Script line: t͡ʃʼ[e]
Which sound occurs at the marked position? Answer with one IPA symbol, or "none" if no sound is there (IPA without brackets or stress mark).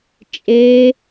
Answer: e